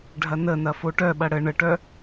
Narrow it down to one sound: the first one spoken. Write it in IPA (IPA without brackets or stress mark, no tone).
ɖʱ